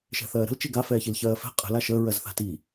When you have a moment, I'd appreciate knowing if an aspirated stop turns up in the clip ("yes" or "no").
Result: no